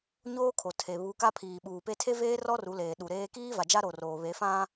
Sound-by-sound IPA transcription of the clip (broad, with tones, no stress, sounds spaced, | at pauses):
ɲ oː˦ kʰ o˨ tʰ e˨ β u˨˦ k a˦ pʰ iː˨ ɓ uː˨ p e˦ tʰ e˦ v eː˦ r ɔ˦ r u˨˦ l eː˨ ɗ u˨ ɾ eː˦ k iː˦ v a˨ d͡ʒ a˦ ɾ o˨ r oː˨ β e˨˦ f ã˦